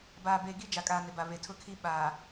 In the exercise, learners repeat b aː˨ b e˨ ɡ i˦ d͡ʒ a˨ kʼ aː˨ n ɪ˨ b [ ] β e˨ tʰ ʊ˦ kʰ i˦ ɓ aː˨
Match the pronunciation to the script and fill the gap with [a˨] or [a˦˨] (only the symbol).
a˨